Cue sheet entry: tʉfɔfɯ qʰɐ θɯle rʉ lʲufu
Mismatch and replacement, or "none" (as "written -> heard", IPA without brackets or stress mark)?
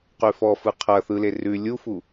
t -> q